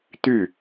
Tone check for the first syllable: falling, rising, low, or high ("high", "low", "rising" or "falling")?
falling